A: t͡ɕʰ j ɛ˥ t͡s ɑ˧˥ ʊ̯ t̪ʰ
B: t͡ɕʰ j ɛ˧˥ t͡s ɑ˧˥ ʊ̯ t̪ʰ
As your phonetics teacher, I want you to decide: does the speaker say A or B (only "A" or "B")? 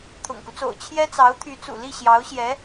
A